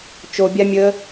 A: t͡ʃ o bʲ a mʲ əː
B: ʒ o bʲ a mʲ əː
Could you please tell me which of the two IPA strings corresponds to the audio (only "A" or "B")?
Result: A